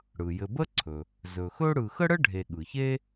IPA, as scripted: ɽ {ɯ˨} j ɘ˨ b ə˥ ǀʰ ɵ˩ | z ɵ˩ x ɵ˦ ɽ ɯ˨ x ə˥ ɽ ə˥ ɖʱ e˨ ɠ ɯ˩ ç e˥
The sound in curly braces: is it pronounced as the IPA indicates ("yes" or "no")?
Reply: no